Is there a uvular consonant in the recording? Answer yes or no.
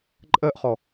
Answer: yes